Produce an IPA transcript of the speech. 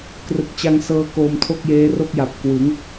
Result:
k r ɯ˨˩ k̚ t͡ɕ a˧ ŋ s ɤː˧ k oː˧ m tʰ o˥˩ k̚ j eː˦˥ r o˥˩ k̚ j a˨˩ p̚ k w ɯ˩˦ ŋ

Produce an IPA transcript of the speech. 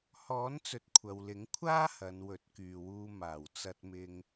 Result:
h ɔː˨˥ n t͡s ɵ˨ t̚ kʷʰ ɐ˨ w l ɪ˨˥ ŋ kʷʰ aː˥ h ɐ˨˧ n w ɵ˨˥ t̚ k yː˨ w uː˧ m aː˨˩ w t͡s ɐ˧ t̚ m ɪ˧ ŋ

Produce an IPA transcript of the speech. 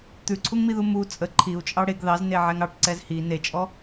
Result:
t̪ ʉ ǀʰ u ŋ m i ð u m u t͡sʼ ə ǃʰ i u̯ t͡ʃʼ ɑ ɽ e ɡ ð ɑ z n e ʕ ɛ ŋ ɑ ʈ ǀ ɛ z h i n e t͡ʃʼ ɔ

